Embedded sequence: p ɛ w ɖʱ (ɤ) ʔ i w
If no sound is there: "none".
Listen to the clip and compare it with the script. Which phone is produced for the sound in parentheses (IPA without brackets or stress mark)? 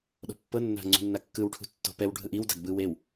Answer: ɯ